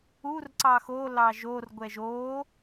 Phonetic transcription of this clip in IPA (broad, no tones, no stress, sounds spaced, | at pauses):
u r ǀ ɑ x o l ɑ ʒ o r ɡʷ ɛ ʒ o